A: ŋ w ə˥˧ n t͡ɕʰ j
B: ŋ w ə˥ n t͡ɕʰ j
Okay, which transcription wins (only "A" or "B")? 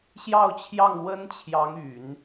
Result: B